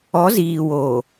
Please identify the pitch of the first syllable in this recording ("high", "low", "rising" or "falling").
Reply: rising